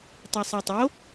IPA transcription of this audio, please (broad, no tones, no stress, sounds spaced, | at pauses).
tˤ i sˤ a tˤ o